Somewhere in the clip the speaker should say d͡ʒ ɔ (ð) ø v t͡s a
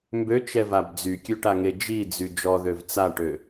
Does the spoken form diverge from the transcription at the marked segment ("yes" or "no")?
no